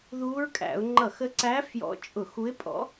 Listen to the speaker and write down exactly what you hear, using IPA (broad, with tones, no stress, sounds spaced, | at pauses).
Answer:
ð uː˧˥ ɹ kʼ æ̰˧˩˧ ʊ̯ ŋ͡ǃ ʌ˧˩˧ x ə˧˥ ǀ æ˧˥ f j ɔ̰˧˥ t͡ʃʼ ʊ˧˩˧ x u˧˥ ɪ̯ pʼ ɔ̰˧˥